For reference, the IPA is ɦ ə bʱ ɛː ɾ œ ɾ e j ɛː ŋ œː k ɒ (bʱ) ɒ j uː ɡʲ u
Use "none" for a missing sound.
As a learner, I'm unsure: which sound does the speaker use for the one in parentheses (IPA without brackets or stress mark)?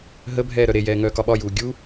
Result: ɓ